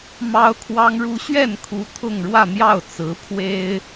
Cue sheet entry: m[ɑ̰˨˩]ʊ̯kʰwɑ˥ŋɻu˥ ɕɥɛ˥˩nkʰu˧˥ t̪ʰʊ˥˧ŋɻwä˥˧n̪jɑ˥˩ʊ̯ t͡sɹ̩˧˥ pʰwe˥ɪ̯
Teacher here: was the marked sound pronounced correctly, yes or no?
no